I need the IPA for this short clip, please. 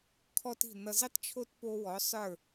kʰɔ˥ti̤˥˩ nʌ˧zi˥tˤt͡ʃʰo˥t po˥wɔ˩˥ sˤə˞˥˩

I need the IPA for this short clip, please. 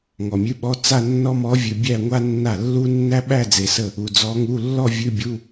ŋɔ˨mʲʉ˧˥˧ɓɔ˧˥˧ t͡sa˥˧nːɔ˥mɔ˧˥vʲʉ˨ bʲæ˥˧ŋʷa˥nːa˥˩ lːu˥ nːæ˥ɓæ˥˧ d͡ze˨sə˥˩ | u˨d͡zɔ˧˥ŋu˧˥˧ lːɔ˥˧ vʲʉ˧˥˧bʲu˧˥˧

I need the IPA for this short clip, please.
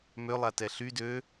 mølˠatɛ ɬy dø

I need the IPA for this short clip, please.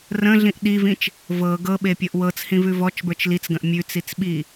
rə̃ɮĩʔ ɗivĩt͡ʃ | vɤ ɡɤɓepʲɤʔ wɤt͡shĩvʉ vɔt͡ʃbə˞t͡ʃ lit͡sɡə̃ʔ mʲʉt͡sit͡sɓi

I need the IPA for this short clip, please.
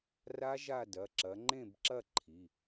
ra˦˥ʒa˦˨ dɐ˩˧˩ǁɐ˨˦ ŋ͡ǃẽ˦˨bǁɐ˦˨ ǃʰi˩˧˩

